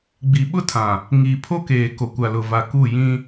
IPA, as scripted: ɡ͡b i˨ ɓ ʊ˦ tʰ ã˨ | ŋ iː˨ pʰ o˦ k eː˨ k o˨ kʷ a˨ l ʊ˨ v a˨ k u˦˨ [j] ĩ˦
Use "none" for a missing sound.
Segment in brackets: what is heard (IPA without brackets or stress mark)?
j